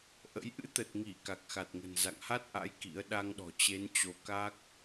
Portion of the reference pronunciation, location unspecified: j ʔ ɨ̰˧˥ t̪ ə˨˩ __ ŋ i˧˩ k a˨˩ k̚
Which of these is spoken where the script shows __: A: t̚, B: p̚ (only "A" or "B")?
A